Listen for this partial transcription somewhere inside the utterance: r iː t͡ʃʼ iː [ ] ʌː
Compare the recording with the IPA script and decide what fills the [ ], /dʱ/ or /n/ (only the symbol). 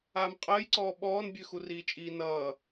n